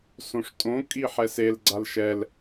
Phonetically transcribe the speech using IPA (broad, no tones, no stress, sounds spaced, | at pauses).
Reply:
s õ ʂ tʼ õ kʼ i ħ ɛ s e l ɡ͡ǀ a l ʃ ɛ l